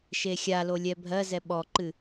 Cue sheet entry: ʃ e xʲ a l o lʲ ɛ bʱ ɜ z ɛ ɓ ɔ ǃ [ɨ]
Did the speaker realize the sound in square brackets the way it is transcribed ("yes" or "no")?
yes